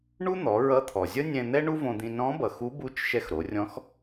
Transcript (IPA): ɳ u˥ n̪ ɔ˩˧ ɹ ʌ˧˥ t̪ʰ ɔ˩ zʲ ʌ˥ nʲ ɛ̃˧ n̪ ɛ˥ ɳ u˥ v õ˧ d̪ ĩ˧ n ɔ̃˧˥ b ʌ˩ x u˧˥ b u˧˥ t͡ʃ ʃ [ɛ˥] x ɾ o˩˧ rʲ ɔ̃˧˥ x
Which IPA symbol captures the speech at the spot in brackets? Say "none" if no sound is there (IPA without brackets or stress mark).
ɛ˧